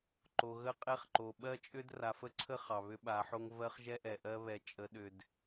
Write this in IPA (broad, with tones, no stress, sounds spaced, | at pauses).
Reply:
ǃ o˨ ɣ ə˦˨ qʼ ɛ˦ χ ǃ o˨ ɓ ɜ˦ t͡ʃʼ ʏ˦ d r a˨ f ə˦ ǀʰ ə˦ χ ɑ˨ β ʏ˦ ɓ a˨˦ ħ o˦ ŋ v ɜ˦ χ ʒ ɛ˦ ʔ ɛ˨ ʔ ɜ˦ β ɛ˨ t͡ʃʼ ə˨˦ ɗ ʏ˨ d